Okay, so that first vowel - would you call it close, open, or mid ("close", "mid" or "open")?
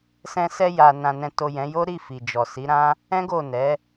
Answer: mid